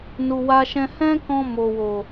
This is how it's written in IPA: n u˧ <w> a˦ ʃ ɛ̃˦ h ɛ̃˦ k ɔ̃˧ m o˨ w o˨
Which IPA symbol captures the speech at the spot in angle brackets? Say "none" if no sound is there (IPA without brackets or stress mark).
w